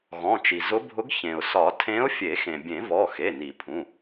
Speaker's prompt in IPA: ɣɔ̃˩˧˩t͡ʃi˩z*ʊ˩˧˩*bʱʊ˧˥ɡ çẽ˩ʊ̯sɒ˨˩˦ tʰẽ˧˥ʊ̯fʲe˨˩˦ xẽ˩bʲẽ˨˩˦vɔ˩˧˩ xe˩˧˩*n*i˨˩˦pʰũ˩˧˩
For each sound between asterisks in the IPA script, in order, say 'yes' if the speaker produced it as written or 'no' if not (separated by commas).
no, yes